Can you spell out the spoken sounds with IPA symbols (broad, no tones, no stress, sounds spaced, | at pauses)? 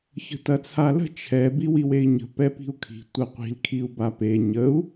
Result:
ç ə̤ t ɐ t͡sʰ a l ə̤ t͡ʃʰ ɛ b i w i w e i̯ ɲ ə̤ p ɛ p i̤ u̯ kʰ i̤ tʷ ɐ qʷ i̤ l kʰ i u̯ b a p e ɲ ə u̯